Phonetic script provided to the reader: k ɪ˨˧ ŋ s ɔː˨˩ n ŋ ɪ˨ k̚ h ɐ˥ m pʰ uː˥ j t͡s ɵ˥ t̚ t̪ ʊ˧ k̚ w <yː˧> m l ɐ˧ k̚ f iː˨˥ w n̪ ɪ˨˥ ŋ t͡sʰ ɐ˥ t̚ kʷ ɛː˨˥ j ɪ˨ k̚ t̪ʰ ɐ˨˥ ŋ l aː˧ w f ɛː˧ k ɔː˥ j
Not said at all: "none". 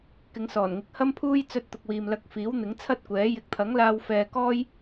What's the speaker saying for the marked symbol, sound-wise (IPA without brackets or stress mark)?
iː˧